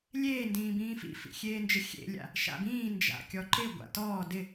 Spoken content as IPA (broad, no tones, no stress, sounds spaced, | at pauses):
lʲ eː n d ĩː b ĩː f ḭ f ḭ xʲ eː n d͡ʒ ɪ xʲ ḛ lʲ a̰ | ʃ a̰ b ĩː n d͡ʒ a̰ kʲ ɔ ǃ ɪ ɡʷ a̰ t ɔː d ɪ